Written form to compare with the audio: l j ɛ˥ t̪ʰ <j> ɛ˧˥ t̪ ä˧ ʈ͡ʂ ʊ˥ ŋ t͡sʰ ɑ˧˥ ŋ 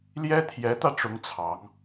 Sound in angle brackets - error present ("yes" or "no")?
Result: no